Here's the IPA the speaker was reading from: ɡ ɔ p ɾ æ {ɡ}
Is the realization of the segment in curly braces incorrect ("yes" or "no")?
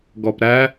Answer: yes